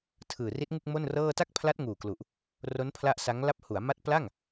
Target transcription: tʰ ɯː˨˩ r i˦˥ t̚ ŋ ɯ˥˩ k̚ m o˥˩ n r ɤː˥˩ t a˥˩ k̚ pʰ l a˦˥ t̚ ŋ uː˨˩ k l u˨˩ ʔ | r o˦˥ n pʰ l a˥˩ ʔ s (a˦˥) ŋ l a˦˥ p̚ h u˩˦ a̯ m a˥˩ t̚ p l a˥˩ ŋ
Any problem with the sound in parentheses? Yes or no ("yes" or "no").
no